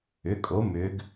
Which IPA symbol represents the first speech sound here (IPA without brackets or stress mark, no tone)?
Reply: ʏ